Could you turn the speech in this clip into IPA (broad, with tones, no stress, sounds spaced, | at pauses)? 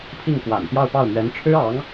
pʰ i˥˩ ŋ k w a̰˨˩ n p j ɑ˥˧ ʊ̯ p ɑ˥˩ ʊ̯ m ɥ ɛ˧˥ n ʈ͡ʂʰ ɻ̩˥ ɑ˧˥ ŋ